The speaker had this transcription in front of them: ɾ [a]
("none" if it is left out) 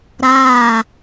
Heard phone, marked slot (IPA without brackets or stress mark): aː